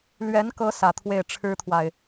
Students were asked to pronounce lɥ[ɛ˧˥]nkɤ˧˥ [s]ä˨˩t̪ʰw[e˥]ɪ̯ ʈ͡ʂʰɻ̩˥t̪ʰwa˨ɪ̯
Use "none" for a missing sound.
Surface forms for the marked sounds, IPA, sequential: ɛ˧˥, s, e˥˩

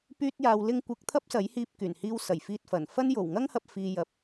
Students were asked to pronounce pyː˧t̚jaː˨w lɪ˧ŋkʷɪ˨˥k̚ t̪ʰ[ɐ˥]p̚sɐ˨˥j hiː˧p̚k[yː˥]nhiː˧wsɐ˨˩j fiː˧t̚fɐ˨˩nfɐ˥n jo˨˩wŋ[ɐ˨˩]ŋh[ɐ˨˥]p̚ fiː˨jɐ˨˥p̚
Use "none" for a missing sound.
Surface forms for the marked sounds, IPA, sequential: ɐ˥, yː˨˩, ɐ˥, ɐ˧

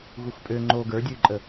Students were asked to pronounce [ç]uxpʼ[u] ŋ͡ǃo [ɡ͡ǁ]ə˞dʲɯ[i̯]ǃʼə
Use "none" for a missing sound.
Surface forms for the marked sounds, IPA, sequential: ɣ, ø, ɡ, y̯

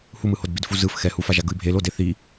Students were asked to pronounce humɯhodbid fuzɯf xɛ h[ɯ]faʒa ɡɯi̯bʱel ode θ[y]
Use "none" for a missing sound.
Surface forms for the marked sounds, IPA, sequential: u, i

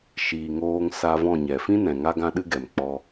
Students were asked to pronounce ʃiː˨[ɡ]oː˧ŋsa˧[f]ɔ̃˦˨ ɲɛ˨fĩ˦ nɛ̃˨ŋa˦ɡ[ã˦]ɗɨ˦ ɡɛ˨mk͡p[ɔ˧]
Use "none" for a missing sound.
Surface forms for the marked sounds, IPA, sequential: ŋ, v, ã˦, ɔ˧

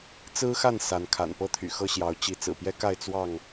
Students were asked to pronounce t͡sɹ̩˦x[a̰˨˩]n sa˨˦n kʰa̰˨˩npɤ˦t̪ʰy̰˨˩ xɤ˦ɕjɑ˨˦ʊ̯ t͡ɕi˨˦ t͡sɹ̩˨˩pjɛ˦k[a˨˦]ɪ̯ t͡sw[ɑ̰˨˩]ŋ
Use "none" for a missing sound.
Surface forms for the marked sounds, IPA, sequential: a˥˨, a˥˨, ɑ˥˨

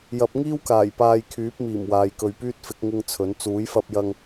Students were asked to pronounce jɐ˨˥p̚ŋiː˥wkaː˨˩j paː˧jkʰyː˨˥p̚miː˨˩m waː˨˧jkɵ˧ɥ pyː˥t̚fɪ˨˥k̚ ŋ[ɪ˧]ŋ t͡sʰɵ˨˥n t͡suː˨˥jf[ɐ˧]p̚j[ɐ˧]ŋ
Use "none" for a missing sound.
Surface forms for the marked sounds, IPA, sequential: ɪ˧, ɐ˧, ɐ˧

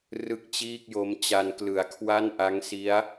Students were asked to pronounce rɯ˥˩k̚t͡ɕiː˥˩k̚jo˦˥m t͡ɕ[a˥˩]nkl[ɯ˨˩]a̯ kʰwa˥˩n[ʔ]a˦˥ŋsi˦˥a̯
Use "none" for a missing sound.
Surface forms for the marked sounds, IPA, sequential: a˧, ɯ˨˩, ʔ

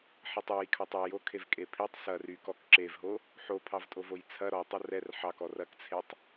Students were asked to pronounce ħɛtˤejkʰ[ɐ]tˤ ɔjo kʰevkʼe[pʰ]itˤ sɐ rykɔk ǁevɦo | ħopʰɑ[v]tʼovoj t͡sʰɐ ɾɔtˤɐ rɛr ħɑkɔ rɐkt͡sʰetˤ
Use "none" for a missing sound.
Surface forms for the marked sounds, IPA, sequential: ɑ, pʰ, v

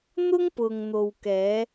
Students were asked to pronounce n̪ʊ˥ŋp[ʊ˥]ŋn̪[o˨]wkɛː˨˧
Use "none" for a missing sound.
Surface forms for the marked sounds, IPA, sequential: ʊ˨, o˨

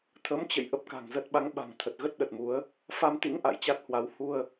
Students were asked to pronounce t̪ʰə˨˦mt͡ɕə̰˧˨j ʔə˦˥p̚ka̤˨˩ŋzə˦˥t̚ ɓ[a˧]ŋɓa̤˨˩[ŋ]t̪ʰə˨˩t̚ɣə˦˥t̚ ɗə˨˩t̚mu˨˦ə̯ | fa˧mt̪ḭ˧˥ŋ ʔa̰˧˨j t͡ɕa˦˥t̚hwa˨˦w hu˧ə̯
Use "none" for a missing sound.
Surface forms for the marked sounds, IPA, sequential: a˨˦, ŋ

